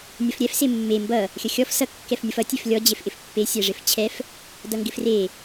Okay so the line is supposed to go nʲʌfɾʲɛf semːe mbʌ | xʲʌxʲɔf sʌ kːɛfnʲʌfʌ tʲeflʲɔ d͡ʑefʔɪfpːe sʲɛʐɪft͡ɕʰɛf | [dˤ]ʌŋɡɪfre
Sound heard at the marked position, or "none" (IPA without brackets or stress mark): d